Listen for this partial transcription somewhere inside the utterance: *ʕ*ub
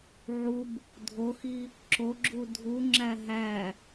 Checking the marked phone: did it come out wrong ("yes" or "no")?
no